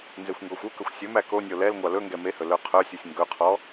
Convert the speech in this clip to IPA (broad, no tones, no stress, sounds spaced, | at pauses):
n z e xʷ ŋ ɡ ɔ xʷ u k ɵ xʷ sʲ ɵ m æ k o nʲ o l ɛ l ŋʷ ɑ l ɵ ŋ ɡ ɛ m e h ɵ l œ qʰ œ sʲ u sʲ ŋ ɡ ɵ qʰ ɔ